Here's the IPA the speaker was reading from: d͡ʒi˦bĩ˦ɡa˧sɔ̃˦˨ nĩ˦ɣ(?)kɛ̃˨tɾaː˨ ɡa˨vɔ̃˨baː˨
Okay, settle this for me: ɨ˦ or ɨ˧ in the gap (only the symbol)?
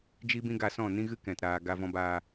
ɨ˦